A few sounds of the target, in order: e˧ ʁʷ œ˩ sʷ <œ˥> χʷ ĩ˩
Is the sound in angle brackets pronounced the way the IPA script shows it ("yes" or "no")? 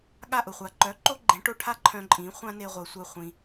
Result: no